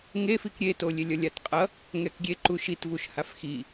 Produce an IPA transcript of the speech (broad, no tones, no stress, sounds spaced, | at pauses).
ŋ e f i k ɾʲ e t o lʲ e lʲ ʌ lʲ a t qʼ ʌ | ŋ ɛ k ɡʲ e ǃ u ʃ i t v u ʃ h a f x i